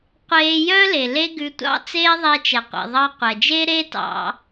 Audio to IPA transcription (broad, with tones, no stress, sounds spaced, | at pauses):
qʷ eː˧ j œ˦ l e˨ l e˦ ɡ ʉ˧ tʷ ɑ̰˦ t͡s eː˦ ðˤ ɛ˧ t͡ʃ ɛ˨ qʷ ḭ˨ ðˤ ɑ˧ qʷ ɛ˨ d͡ʒ e˦ ɾ e˦ t ɑ̰˧